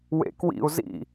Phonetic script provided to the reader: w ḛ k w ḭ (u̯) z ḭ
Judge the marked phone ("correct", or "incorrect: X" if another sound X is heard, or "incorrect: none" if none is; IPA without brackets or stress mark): correct